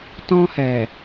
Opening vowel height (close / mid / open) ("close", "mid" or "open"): mid